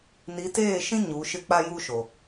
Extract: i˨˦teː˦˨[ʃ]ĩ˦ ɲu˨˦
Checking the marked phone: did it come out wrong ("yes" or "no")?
no